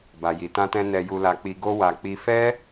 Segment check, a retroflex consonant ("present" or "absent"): absent